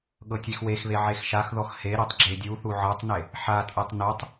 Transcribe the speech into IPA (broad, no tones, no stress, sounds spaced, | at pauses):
ɠ ɤ tʲ e x w e x β e ʕ e x ʃ a x ð ɔ x h e ɾ i tˤ ɡ͡ǁ e dʲ u θ u ʕ ɤ tˤ n e | ħ a tʼ e tˤ n o tˤ